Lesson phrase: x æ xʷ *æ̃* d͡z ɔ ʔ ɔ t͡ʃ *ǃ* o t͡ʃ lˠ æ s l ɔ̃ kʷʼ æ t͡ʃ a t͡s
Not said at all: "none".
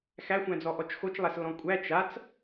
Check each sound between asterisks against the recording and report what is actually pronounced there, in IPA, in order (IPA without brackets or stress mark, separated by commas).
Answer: æ̃, x